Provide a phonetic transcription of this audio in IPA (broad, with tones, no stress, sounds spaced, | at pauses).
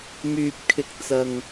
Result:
m yː˧ p̚ kʰ ɪ˧ k̚ t͡s ɐ˧ ŋ